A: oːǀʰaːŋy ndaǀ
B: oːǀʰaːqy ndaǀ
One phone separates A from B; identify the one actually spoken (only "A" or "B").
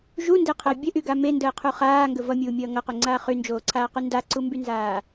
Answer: B